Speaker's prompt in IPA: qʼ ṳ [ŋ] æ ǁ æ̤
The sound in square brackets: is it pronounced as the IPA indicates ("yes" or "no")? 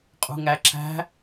yes